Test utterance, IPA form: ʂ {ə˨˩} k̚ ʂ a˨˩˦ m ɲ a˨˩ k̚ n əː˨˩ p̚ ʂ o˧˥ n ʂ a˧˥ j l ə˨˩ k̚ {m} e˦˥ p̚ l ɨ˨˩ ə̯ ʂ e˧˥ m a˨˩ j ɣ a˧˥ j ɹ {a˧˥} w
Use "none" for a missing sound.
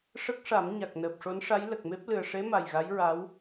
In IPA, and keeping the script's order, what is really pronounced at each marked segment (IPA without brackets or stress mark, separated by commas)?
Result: ə˦˥, m, a˧˥